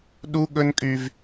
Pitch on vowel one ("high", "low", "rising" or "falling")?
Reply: high